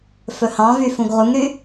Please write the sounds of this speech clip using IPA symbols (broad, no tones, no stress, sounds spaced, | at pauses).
f ɵ h ɑ̃ v y f ũ ɡ ʁ u ŋ ɾ y